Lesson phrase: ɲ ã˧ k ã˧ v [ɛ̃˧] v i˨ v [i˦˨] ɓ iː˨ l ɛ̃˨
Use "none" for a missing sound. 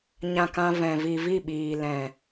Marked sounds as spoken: ɛ̃˨, i˦˨

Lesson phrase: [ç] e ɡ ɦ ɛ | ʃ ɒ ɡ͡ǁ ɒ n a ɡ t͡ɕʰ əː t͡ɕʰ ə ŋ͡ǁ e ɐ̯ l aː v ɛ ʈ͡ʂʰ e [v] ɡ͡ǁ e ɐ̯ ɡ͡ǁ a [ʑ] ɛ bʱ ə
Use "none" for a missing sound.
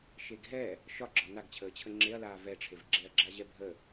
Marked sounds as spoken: ʃ, v, ʑ

